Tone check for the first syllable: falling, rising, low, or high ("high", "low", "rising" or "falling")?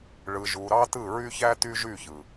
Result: low